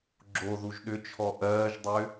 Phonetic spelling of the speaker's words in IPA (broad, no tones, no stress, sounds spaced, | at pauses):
ɡ͡ǁ o ð u ʒ ɗ ʏ t͡ʃʰ ɔ ʔ ɜː ʒ dˤ ʏː